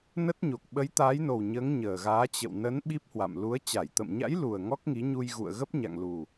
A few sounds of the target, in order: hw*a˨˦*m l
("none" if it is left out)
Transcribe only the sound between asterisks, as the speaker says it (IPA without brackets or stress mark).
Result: a̰˧˨